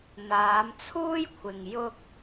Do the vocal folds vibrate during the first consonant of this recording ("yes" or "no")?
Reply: yes